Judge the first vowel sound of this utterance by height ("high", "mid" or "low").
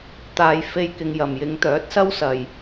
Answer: low